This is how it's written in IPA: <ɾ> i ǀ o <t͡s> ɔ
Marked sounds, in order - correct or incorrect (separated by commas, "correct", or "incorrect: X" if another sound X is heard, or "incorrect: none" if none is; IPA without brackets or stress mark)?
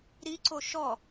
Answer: correct, incorrect: ʃ